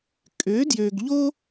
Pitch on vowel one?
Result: rising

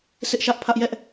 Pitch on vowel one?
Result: high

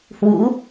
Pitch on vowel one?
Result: rising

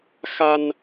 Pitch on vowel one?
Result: high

